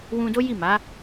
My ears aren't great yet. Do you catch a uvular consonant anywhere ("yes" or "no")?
no